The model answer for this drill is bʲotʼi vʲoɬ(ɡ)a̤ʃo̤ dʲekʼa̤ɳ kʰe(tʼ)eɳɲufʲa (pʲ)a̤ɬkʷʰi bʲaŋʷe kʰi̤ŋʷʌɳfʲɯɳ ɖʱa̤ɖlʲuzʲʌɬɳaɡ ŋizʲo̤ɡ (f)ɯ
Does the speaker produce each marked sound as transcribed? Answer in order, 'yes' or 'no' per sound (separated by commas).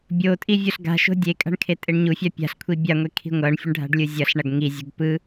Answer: yes, yes, yes, no